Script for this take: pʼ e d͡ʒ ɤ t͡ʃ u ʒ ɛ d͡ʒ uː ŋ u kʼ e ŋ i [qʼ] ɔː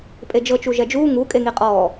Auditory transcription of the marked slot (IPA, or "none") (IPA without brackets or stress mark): qʼ